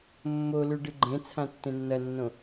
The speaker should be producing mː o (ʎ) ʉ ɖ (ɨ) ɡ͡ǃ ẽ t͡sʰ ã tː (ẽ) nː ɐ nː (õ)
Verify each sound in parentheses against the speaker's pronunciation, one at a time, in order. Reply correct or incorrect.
incorrect, correct, correct, correct

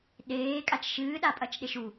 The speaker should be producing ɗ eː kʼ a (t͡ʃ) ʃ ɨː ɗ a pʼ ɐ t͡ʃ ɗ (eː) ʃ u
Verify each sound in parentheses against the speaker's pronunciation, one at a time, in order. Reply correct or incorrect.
correct, incorrect

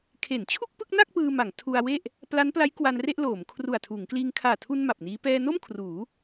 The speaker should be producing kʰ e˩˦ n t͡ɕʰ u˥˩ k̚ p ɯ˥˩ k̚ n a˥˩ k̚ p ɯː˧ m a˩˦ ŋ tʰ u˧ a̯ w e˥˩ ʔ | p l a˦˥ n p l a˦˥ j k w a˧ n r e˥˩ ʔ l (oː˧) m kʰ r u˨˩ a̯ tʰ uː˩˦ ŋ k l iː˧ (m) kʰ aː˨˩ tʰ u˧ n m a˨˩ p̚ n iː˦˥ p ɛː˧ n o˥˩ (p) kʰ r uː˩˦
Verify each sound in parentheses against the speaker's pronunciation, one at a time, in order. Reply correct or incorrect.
incorrect, incorrect, incorrect

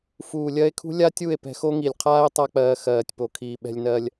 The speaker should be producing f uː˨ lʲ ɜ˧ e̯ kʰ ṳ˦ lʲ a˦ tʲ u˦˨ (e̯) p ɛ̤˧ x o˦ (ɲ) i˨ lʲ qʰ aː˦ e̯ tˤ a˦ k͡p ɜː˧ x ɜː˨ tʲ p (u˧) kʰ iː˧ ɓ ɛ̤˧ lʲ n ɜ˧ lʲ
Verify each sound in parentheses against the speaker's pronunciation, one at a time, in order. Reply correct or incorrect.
correct, incorrect, incorrect

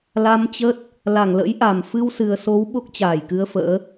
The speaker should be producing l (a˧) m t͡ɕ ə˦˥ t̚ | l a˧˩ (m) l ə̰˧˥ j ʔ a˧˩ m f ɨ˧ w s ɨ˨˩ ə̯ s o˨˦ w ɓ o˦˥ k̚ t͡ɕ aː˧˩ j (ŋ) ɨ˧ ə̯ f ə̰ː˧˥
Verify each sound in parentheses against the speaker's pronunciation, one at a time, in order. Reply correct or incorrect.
correct, incorrect, incorrect

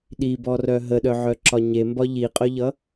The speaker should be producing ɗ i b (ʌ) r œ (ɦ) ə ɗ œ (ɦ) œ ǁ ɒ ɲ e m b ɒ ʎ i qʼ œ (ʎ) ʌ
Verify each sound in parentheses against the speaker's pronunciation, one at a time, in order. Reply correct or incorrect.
incorrect, correct, incorrect, correct

